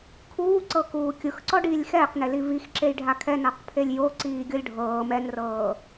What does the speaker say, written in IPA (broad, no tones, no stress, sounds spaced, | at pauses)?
kʰ uː ǀ ɤ k uː kʲ ɯ x ǀ ɔ ɖ iː lʲ x ɛː q n e l i v i x ǁ e j ɖʱ a kʰ ɛ n a q pʰ e lʲ j o ǀ iː ɡʲ ɤ lʲ ɖʱ ɤː m ɛ n r ɤː